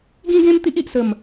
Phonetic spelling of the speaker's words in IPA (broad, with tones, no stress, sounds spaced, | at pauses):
ɡ ĩ˦ ɡ ẽ˦ m t̪ i˦ ʔ i˨ ʔ s ə˨˩ m